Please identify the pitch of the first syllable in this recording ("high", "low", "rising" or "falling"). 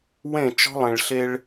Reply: falling